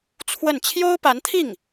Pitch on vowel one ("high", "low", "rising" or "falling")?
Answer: falling